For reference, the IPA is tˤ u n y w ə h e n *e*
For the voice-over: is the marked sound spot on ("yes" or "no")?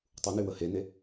yes